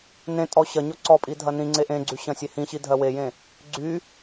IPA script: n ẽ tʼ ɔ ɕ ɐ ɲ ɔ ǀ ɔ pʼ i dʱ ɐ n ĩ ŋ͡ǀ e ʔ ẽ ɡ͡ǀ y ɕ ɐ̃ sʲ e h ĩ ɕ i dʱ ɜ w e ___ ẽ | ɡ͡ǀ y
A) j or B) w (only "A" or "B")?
A